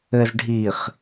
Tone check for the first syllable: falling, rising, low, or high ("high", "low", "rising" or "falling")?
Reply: low